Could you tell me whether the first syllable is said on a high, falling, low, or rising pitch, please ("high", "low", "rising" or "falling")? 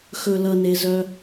low